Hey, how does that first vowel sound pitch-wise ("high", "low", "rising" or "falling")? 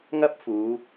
high